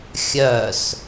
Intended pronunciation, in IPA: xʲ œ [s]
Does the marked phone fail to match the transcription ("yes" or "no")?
no